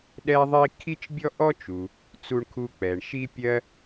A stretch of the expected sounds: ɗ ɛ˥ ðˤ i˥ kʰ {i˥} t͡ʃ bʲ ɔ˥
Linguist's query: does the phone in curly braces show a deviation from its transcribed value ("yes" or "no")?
no